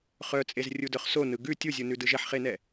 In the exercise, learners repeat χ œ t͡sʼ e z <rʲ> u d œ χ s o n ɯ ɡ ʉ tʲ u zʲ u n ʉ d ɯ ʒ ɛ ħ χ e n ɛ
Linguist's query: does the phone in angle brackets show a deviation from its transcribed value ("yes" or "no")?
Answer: no